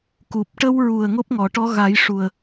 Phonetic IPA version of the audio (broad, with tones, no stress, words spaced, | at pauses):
ku˨˩p̚ʈə˧wɹu˨˩ə̯ ŋo˦˥p̚ŋɔ˨˩˨ʈɔ˧˥ ɣa˨˩˦j ʂu˨˩ə̯